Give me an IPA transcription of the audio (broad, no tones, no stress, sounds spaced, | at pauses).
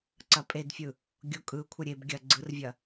ǀ ɐ pʼ e d fʲ ɯ | ɡʲ o kʼ ɯ kʷʰ ə ɾʲ e b ɡʲ ɐ ɡ͡ǀ ɯ r vʲ ɐ